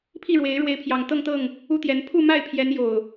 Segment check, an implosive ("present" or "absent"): absent